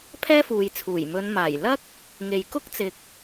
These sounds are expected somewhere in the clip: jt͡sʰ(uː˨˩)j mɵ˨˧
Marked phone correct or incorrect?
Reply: correct